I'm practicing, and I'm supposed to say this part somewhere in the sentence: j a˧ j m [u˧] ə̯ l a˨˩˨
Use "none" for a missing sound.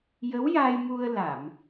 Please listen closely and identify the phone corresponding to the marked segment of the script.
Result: u˧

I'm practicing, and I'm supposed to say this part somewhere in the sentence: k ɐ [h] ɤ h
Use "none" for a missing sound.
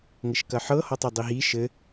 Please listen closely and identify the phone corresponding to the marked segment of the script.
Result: ħ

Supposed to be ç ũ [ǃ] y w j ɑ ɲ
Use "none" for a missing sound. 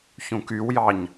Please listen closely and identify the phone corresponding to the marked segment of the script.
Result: k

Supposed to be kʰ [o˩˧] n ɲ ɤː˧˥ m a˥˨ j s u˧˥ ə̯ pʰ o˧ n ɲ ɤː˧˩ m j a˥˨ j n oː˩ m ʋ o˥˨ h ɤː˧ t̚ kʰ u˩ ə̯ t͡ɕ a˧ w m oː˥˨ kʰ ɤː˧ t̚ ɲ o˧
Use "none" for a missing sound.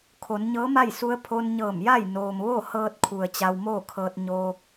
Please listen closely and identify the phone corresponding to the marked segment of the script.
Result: o˩˧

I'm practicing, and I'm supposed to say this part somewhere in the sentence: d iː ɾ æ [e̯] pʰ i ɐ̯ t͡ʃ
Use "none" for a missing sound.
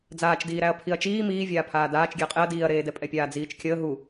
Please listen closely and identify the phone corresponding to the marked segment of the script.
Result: ɐ̯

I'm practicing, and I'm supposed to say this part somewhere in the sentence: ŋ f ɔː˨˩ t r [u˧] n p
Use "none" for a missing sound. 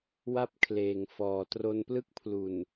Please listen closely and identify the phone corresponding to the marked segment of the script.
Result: o˧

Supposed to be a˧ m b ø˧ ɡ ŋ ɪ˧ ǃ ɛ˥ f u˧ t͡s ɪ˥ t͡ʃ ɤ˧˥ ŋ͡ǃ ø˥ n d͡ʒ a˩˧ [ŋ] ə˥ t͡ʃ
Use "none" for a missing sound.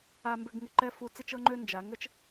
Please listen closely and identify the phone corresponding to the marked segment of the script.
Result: ŋ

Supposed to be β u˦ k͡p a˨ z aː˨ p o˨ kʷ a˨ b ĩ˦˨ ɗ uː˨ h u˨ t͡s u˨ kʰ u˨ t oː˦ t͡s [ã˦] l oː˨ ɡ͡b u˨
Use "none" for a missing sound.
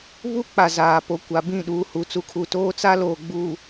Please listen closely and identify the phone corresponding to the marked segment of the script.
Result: a˦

